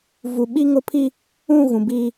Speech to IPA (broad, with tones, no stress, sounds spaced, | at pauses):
v u˨ ɓ i˦ ŋ ʊ˦ pʰ i˦ | ũ˦˨ ɣ ũ˨ b iː˦